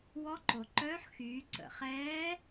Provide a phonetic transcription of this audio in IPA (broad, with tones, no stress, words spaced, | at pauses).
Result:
wɔ˧˥ǃo˩ǃœː˧˥ħ xyː˩˧ǀə̰˩χɛː˧˥